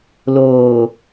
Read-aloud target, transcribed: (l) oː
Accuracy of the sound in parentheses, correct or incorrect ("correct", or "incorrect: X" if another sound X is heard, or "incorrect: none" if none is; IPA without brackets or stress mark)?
correct